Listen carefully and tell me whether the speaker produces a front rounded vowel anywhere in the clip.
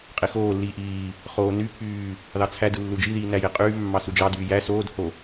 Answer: yes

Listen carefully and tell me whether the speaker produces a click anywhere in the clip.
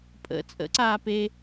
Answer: yes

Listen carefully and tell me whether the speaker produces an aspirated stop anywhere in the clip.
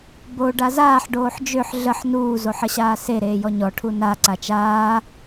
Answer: yes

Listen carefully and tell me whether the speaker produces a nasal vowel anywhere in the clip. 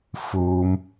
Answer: no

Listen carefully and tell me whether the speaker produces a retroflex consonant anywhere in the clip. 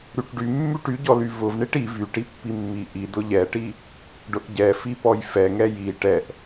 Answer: yes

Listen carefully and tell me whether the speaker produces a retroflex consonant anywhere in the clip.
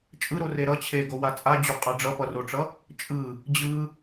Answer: yes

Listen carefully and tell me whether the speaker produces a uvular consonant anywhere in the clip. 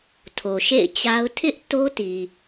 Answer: no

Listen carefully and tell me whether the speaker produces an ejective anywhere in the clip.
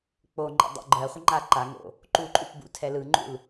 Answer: yes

